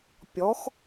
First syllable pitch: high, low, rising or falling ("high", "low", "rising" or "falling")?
rising